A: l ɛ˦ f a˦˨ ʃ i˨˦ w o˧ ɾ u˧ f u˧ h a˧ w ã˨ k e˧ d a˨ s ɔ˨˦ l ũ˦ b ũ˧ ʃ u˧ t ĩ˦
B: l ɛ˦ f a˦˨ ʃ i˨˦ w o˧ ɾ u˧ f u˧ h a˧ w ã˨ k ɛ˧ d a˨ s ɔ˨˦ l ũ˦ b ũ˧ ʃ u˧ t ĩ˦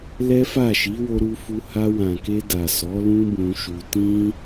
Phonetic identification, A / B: A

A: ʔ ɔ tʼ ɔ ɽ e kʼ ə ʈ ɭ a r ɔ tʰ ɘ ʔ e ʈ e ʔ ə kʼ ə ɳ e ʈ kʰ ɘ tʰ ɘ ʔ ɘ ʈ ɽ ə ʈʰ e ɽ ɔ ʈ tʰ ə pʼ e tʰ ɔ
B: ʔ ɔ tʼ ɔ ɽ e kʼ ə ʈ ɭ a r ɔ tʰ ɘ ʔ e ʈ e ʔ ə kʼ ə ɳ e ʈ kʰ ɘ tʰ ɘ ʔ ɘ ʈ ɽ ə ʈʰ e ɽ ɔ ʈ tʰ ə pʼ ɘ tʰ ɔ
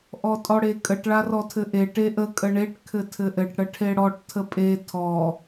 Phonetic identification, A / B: A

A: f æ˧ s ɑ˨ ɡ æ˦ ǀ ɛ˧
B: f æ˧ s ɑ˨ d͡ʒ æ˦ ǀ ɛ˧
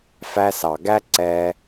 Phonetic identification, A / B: A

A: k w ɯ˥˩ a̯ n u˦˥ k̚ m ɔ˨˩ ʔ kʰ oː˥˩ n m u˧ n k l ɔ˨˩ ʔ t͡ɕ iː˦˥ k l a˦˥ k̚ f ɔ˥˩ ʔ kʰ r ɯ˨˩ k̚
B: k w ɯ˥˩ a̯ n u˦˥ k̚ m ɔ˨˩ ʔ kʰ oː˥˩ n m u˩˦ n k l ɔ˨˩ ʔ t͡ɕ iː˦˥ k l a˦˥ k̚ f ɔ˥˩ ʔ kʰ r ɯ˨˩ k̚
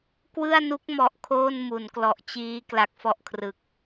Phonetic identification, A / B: B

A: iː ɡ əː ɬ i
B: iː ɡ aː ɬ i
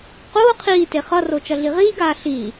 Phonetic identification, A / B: B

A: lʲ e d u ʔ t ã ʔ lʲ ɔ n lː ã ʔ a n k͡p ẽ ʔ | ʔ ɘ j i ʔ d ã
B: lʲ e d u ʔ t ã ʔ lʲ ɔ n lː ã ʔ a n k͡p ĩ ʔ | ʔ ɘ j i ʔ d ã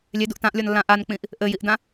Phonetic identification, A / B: B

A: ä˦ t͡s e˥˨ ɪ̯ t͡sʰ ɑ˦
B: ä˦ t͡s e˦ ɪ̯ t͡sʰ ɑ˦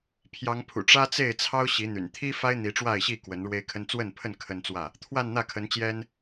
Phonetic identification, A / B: A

